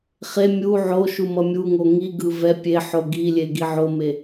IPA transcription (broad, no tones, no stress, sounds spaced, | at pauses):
χ e mʲ u ʕ o ʃ u m ʌ mʲ u ŋ o ŋ i ɡ ɯ v ɛ pʲ e ħ o ɡ i lʲ e ɡ i ʕ o m e